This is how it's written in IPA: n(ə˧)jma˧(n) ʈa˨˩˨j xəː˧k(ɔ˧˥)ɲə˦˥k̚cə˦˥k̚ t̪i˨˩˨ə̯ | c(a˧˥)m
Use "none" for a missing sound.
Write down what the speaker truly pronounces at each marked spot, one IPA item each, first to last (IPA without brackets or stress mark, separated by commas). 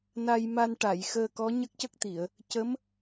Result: a˧, n, ɔ˧˥, ə˧˥